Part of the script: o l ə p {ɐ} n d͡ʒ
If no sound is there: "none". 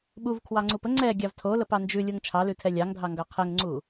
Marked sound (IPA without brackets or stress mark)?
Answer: ɑ